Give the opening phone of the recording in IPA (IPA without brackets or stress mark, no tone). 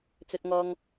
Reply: t͡s